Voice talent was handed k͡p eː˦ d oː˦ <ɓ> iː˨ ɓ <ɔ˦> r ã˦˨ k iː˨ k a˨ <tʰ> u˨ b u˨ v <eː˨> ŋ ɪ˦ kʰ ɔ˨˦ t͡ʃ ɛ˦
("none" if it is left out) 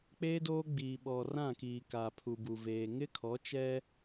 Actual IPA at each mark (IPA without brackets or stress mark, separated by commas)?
ɡ͡b, ɔ˨, pʰ, eː˨